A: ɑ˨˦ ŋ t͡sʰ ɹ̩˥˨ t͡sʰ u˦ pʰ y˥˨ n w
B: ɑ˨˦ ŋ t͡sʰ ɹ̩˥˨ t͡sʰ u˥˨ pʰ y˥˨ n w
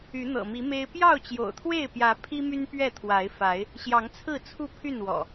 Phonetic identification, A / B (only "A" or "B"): B